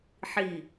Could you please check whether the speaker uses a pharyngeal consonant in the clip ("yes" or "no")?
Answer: yes